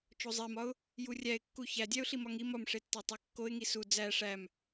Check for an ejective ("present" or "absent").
absent